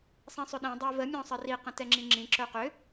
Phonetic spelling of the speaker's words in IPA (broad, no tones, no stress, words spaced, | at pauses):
sˤĩsˤʏɗĩ dˤævə mʲɔ̃sˤəri qə̃tɛŋ͡ǁĩŋ͡ǁĩ ǁœqʏ